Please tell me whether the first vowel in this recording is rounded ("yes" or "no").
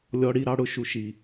yes